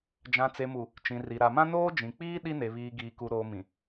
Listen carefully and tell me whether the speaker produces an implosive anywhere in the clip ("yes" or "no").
yes